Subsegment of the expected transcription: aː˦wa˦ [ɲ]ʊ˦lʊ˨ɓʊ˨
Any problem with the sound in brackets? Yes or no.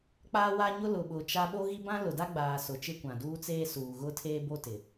no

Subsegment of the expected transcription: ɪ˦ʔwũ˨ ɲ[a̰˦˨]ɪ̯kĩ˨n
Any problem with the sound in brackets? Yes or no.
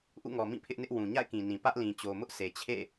no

